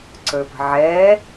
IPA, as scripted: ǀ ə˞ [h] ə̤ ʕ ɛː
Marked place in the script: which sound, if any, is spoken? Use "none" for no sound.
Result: p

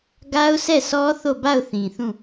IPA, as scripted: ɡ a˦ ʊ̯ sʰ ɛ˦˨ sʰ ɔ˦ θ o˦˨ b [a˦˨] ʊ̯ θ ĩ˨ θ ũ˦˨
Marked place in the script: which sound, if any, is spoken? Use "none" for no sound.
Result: a˦˨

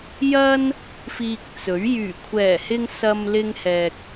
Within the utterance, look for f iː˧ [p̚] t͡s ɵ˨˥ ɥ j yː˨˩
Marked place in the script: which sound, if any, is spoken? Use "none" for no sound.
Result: k̚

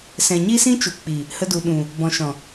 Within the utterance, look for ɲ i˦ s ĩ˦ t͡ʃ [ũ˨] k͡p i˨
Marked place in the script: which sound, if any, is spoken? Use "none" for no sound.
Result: u˨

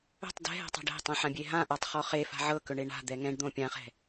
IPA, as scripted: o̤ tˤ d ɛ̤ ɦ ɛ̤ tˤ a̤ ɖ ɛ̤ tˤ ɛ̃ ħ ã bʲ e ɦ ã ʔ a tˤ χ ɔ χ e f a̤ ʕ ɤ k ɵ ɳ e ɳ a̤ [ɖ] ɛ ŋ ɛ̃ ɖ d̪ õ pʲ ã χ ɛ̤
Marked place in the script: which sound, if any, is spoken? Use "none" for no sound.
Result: d̪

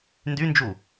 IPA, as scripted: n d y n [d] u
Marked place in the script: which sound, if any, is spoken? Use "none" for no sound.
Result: d͡ʒ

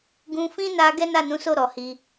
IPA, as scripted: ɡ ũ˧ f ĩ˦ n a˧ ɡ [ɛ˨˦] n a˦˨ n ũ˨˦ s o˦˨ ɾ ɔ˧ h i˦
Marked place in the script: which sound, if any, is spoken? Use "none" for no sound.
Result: ɛ˦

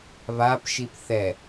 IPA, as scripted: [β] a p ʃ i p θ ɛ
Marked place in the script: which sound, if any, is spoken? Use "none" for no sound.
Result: β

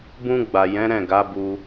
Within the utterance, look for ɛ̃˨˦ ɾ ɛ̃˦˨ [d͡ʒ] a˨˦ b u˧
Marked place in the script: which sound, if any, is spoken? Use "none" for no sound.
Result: ɡ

